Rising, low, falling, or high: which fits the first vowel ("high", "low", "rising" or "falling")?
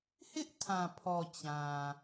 high